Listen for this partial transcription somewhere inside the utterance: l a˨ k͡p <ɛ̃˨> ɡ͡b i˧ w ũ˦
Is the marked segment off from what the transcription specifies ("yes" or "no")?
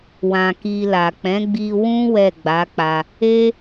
yes